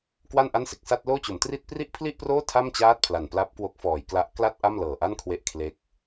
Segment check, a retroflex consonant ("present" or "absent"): absent